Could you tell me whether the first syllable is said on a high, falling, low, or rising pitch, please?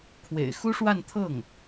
low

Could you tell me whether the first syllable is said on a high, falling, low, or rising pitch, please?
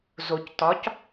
low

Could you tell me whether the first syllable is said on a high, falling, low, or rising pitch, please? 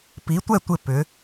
rising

